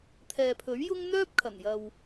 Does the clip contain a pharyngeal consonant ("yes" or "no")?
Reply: no